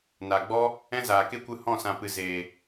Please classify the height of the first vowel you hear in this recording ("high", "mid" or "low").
low